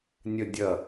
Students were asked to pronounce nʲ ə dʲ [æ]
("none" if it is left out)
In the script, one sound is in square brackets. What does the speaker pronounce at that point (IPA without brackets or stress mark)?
ɐ